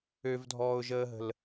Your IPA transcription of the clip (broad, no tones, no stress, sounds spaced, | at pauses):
ø v dʱ ɔː ʊ̯ ʒ əː ɦ ə̤ l